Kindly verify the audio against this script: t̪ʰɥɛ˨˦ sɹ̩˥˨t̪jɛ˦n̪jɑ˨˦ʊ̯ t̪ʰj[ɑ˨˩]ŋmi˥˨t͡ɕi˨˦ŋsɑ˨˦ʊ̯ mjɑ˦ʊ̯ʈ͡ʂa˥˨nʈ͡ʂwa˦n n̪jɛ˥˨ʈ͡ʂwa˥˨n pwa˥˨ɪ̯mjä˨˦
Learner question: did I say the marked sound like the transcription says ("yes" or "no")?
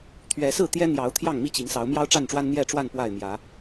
no